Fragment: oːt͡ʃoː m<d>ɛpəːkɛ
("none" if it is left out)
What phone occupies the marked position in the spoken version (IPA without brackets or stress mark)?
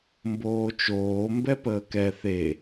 b